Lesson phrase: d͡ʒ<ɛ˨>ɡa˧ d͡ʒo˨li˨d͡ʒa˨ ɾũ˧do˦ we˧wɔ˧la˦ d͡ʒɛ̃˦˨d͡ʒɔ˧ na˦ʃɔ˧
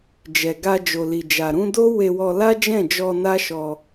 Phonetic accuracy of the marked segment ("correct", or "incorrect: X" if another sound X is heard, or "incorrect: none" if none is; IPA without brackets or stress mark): correct